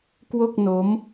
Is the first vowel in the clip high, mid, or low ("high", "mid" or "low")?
mid